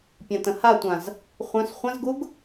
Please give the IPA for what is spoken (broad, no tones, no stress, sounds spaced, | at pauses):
pʲ ã t ə̃ h a tʷ ã z | χʷ œ̃ s χʷ ə̃ z ɡ u ɡ